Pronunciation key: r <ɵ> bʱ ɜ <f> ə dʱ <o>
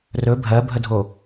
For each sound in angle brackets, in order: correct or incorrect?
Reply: correct, incorrect, correct

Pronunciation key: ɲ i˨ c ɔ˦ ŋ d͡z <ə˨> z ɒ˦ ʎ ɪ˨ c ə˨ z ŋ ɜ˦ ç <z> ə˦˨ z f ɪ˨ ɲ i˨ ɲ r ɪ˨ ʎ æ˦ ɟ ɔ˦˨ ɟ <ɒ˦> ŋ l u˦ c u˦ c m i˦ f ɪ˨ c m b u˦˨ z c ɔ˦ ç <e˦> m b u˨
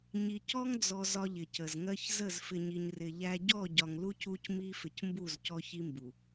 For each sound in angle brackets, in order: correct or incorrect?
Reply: incorrect, correct, incorrect, incorrect

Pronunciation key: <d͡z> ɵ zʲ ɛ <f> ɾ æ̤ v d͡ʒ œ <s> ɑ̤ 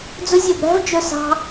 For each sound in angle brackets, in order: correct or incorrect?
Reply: correct, incorrect, correct

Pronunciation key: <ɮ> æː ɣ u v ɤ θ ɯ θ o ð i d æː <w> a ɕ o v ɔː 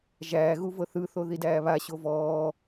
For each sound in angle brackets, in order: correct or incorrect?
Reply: incorrect, incorrect

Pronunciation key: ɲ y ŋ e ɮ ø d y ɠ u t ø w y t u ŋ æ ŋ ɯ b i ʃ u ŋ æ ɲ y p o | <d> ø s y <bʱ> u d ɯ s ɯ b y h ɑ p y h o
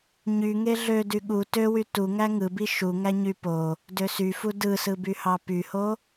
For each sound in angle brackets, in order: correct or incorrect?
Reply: correct, incorrect

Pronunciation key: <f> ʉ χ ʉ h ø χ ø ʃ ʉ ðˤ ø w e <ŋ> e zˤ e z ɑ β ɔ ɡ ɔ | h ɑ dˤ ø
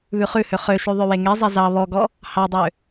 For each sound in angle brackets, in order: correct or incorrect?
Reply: incorrect, correct

